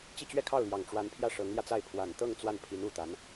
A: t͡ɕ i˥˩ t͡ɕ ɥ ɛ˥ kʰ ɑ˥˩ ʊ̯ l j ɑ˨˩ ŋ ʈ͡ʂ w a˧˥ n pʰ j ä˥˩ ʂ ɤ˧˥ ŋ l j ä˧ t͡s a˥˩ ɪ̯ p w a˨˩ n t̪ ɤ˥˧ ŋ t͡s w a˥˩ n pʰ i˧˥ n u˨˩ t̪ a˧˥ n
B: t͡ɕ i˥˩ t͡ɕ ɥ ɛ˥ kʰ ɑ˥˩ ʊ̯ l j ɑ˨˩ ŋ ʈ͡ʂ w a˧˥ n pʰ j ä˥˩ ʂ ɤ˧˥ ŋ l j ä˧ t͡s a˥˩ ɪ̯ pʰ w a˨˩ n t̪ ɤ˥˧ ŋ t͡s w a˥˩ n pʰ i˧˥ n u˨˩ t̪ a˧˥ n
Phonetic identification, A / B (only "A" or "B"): B